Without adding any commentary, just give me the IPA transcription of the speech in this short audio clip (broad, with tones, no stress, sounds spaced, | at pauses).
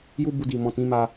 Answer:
j u˦ b u˧ d i˨ m ɔ̃˨ t ĩ˨˦ m a˧